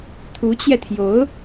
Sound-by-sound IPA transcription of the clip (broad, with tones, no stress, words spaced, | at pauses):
t̪ʰu˧˥t͡ɕjɛ˧t̪ʰjo˧˥ʊ̯